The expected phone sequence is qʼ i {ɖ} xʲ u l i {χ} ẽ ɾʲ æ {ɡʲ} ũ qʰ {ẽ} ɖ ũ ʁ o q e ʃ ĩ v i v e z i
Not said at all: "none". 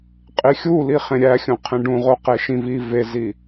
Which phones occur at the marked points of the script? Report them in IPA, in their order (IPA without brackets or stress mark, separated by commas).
none, χ, xʲ, ẽ